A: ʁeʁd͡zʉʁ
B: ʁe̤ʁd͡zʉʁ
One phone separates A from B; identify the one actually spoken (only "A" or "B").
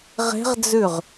B